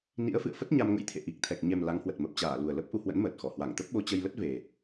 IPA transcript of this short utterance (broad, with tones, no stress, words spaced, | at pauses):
nḭ˧˥ə̯fɨ̰˧˨ə̯ fə˦˥t̚ɲa˧mŋə̰˧˥jt̪ʰḛ˧˨ ʔi˨˩k̚t̪ʰɛ˨˩k̚ ɲɛ˨˩m la˨˦ŋhwə˨˩t̚ mə˨˩p̚t͡ɕaː˧˩ lu˨˩ə̯lə˦˥p̚ ʔu˧hwə̰˧˥nməː˨˩t̚xɔ˧˩ hwa˧˩ŋt̪ə˦˥p̚ɓo˧ t͡ɕə˧jlə˦˥t̚ve˨˩